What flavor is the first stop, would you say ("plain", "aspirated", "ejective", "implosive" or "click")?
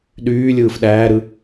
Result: implosive